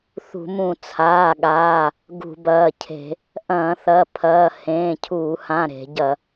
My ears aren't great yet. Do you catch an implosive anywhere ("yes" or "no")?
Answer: yes